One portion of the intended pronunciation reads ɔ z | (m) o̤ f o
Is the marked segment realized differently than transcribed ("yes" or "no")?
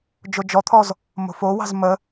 no